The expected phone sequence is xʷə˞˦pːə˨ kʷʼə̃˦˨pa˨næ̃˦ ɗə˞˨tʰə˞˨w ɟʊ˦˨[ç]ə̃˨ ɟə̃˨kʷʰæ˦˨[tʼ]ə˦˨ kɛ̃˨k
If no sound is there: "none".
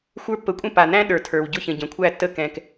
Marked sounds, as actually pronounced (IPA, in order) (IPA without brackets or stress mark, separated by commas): ç, tː